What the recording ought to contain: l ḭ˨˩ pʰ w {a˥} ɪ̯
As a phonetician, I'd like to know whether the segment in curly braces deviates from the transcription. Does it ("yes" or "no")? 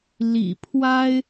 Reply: no